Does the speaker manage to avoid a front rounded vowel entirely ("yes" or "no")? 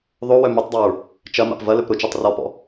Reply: no